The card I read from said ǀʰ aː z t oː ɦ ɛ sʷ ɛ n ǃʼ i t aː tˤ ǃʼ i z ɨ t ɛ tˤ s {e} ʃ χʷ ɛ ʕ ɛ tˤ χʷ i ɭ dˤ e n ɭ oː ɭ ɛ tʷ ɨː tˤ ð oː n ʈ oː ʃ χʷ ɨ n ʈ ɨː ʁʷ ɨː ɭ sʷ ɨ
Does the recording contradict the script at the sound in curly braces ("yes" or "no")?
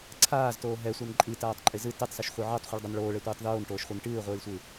yes